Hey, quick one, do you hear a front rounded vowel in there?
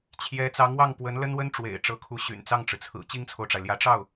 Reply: yes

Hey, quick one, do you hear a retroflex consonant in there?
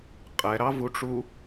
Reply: yes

